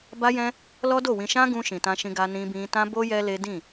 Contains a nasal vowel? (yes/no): yes